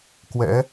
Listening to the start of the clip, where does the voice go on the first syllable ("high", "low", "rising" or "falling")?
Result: rising